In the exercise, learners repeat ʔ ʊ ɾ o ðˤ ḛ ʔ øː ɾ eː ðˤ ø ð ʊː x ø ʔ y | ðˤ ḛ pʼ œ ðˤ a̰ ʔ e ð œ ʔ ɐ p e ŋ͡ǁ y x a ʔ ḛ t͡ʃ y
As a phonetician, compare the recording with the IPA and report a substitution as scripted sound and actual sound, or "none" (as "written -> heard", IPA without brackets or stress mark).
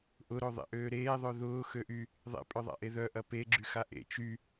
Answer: ŋ͡ǁ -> ɡ͡ǁ